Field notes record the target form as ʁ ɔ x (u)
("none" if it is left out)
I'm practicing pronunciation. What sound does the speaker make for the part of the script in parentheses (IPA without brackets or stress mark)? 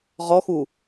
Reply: u